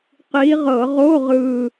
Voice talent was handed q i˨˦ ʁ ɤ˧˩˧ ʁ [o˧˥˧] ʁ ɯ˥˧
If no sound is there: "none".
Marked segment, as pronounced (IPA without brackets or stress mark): o˧˥˧